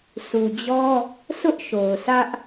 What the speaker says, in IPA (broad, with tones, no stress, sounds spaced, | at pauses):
s u˨ d͡ʑ ɔ˦ | s ʊ˦ ʔ ʃ o˨ ʊ̯ sʰ ä˦ ʔ